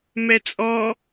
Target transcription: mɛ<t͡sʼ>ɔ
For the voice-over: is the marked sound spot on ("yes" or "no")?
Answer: yes